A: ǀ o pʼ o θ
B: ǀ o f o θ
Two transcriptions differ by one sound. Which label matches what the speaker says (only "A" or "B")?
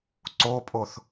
A